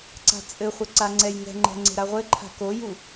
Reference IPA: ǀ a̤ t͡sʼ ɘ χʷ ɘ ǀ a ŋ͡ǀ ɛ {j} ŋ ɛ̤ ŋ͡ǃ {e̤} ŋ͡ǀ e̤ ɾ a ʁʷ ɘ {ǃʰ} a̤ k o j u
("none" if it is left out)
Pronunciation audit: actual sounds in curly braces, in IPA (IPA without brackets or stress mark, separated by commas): j, ɛ̤, ǃʰ